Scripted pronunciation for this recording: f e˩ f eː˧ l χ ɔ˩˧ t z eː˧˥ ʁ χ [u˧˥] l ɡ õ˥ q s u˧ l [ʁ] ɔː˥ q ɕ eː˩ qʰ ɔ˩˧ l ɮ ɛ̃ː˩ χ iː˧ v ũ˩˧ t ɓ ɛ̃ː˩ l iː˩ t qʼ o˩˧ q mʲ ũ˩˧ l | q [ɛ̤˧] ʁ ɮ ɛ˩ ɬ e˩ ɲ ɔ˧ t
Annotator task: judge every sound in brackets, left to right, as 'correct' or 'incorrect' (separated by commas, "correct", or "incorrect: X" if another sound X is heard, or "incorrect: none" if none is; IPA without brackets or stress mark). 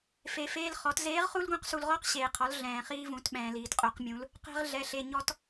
incorrect: u˥, correct, correct